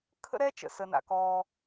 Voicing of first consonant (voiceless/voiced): voiceless